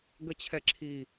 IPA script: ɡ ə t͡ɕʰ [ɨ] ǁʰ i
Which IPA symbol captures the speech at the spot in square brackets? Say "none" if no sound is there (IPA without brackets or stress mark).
ɛ